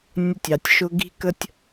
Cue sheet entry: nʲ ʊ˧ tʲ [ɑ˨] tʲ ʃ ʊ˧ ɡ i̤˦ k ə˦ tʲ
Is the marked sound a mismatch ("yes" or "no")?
no